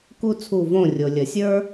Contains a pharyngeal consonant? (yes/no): no